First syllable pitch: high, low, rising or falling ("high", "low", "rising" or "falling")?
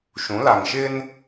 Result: rising